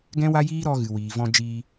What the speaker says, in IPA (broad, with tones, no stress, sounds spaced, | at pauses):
ɡ ɛ̃˦ w a˦ j iː˦ ɾ ɔ˧ ɣ ɨ˨ w iː˨ v ɔ̃˧ d͡ʒ iː˧